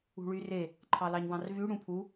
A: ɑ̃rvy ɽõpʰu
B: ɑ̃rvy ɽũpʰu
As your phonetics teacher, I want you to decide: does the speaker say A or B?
B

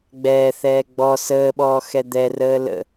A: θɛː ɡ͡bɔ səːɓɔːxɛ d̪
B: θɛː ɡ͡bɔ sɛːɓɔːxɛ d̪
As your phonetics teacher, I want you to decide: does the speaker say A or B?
A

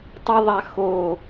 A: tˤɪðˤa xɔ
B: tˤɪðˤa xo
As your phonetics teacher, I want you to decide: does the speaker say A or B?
B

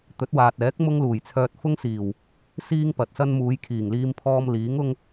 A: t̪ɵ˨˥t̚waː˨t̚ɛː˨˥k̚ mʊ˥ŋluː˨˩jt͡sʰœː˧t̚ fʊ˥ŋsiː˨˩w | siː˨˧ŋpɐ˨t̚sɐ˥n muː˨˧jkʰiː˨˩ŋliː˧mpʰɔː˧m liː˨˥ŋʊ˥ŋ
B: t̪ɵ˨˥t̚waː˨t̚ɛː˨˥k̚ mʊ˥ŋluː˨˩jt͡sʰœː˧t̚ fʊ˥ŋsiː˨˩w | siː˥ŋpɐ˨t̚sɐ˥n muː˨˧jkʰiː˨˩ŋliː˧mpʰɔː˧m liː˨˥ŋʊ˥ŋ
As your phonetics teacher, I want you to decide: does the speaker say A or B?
B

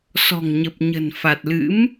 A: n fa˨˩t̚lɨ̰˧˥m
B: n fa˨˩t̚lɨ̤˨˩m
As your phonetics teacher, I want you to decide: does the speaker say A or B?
A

